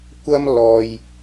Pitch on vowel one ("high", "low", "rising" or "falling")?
high